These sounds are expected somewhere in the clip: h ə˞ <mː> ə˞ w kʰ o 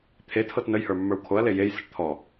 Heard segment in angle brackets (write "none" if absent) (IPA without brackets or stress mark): mː